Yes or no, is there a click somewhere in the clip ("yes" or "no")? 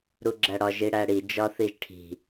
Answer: yes